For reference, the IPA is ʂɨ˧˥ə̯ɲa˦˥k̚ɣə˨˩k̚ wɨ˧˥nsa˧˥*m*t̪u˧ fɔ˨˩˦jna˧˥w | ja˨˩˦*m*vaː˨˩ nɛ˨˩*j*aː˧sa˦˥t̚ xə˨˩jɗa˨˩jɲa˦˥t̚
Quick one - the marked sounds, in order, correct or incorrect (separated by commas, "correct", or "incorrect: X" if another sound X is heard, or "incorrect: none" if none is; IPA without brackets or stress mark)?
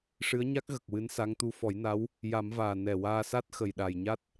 incorrect: ŋ, correct, incorrect: w